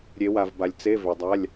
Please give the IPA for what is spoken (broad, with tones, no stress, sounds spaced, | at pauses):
ɾʲ e˨˦ w a˨ v b a˨ lʲ t͡s e˧˥˧ v ʏ˨ dˤ a˧˥˧ lʲ